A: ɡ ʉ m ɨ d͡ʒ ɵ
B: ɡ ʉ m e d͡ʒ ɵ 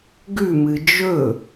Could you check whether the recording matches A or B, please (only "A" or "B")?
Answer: A